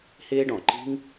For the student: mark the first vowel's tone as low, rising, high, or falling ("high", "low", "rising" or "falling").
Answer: high